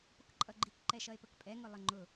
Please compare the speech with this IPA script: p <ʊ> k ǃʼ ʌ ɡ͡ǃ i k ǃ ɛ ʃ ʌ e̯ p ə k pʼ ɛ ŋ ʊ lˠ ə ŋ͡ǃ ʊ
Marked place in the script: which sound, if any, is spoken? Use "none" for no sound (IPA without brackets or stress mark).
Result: ʊ